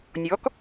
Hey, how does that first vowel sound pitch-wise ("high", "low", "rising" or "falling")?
rising